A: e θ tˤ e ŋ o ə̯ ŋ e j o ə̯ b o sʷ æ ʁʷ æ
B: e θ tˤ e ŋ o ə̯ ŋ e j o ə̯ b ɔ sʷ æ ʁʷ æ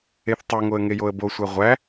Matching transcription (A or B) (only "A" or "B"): A